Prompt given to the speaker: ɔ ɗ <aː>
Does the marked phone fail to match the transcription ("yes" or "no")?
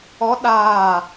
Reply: no